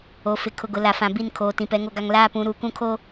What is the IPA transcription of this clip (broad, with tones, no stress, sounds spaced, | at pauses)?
o˨ f ɪ˨ kʰ ʊ˨ ɡ ʊ˨ l a˨ f ã˨ b i˦˨ n kʰ oː˨ t ĩ˨ p ɛ˨˦ ŋ o˦ ɡ a˦ ŋ l aː˦ p ũ˨˦ ɾ u˨˦ k ũ˦ kʰ o˦